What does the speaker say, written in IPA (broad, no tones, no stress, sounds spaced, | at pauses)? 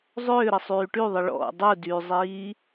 zˤ ʏː ɾ ə sˤ yː ʈ y ðˤ ə ɭ ɔ̰ dˤ u d yː zˤ iː